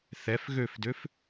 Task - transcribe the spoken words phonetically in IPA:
θ ɛ f ɣ ø f d ø f

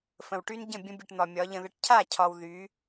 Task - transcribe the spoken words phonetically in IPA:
f ə̃˨ w ʈ y˦ n ɟ ə̃˦˨ bʲ ə̃˦ bʲ ə˧ ʈ n̪ ɒ˨ mʲ ɒ˨˦ ʎ ə̃˧ ð ə˧ ʈ cʰ a˦˨ cʰ ɒ˧ w ð y˨˦

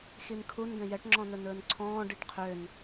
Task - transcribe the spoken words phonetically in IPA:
x i n kʰ u n ɡ ɛ̃ j ɛ ʈ ŋ͡ǁ ɔ̃ n ɵ n ɵː n ǀʰ ɔ̃ː ɖ i ʈ qʰ ø n

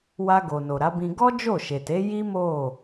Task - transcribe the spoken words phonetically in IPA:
w a˧ ɡ o˨ n o˨ ɾ a˨˦ b ĩ˧ ɡ ɔ˦ d͡ʒ o˦˨ ʃ e˨ t e˨˦ j i˦ m o˦˨

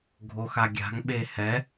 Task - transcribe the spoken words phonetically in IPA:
ɡʱ o x a ɡʲ a̤ ŋ ɓ e h ɛ

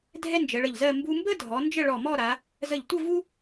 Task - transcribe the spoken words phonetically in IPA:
dʱ ɛ˥ n d͡ʒ ə˩˧ ɭ ə˧˩ ʎ z ɜ˥˧ m b u˧ m b ə˥ dʱ ɔ˩˧ n d͡ʒ ə˥˧ ɭ ɔ˧˩ m ɔ˥˧ ɾ a˩˧ | z ə˧˩ ʎ tʷ ə˥˧ v u˥

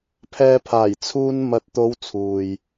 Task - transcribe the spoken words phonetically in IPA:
pʰ ɛː˧ pʰ aː˨˩ j t͡sʰ uː˧ n m ɐ˨˥ t̚ t̪ o˨˧ w t͡sʰ uː˨ j

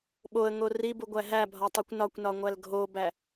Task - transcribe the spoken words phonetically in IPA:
ɓ o ə̯ ŋ o r i b u ɡʷ æ ɦ æ bʱ ɒ tˤ i kʷ n ɒ kʷ n ɒ ŋʷ æ l ɡʱ o b æ

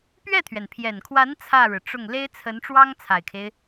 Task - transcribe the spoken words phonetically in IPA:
p ɥ ɛ˥˩ t̪ʰ ɥ ɛ˩ n pʰ j ɛ˨˩ n kʰ w a˧˥ n t͡sʰ ä˥˩ ɻ ɻ̩˩ ʈ͡ʂ ʊ˥˩ ŋ l e˥ ɪ̯ t͡sʰ ə˧˥ n ʈ͡ʂ w ɑ˥ ŋ t͡sʰ a˨˩ ɪ̯ kʰ e˦ ɪ̯

